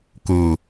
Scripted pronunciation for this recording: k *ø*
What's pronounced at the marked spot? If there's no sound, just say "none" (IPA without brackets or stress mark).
u